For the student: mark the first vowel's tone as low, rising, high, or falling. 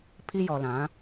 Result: high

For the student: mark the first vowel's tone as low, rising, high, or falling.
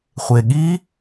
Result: low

